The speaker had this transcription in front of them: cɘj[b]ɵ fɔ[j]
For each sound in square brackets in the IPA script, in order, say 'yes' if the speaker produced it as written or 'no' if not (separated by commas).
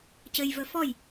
no, yes